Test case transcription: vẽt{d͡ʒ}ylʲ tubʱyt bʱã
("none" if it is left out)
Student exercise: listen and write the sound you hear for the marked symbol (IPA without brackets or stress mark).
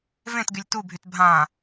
ɡ